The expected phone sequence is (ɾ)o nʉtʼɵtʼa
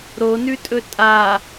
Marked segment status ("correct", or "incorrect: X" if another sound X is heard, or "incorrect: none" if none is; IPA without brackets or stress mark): correct